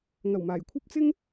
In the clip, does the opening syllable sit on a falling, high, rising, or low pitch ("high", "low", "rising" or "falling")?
low